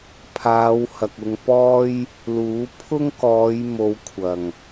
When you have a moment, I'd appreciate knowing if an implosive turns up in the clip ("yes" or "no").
no